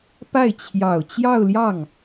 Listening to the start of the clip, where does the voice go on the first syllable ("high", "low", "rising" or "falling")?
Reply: falling